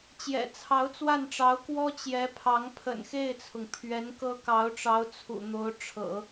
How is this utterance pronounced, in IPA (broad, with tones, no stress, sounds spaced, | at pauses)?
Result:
t͡ɕ j ɛ̰˨˩ t͡sʰ ɑ˧˥ ʊ̯ t͡s w a˥˩ n ʈ͡ʂ ɑ˧˥ ʊ̯ k w ɔ˥ t͡ɕ j ɛ˧˥ pʰ ɑ˧˥ ŋ pʰ ə̰˨˩ n x e˥˩ ɪ̯ t͡sʰ ʊ˩ ŋ pʰ ɥ ɛ˧˥ n k ɤ˥ k ɑ˧˥ ʊ̯ ʈ͡ʂ ɑ˧˥ ʊ̯ t͡sʰ ṵ˨˩ n̪ o˧˥ ʊ̯ ʈ͡ʂʰ ɤ̰˨˩˦